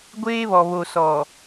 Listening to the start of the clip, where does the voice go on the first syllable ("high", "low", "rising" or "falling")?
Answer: high